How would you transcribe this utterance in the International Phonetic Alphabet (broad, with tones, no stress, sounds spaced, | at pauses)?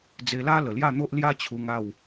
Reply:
d͡z e˧ l a˦ l ə˨˩ l j a˥˧ n̪ o˦ ʔ l j a˦ t͡ɕʰ u˧ ŋ a˥˧ w